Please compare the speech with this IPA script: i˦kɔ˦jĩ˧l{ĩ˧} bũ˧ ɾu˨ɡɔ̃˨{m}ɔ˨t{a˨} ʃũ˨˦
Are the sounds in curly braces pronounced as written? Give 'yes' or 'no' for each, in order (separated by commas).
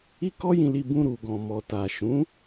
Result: no, yes, yes